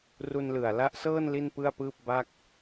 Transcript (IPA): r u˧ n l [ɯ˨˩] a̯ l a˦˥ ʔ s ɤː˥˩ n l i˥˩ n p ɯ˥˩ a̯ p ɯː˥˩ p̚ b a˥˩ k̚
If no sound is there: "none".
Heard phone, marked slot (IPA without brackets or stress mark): ɯ˨˩